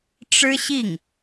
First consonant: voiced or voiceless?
voiceless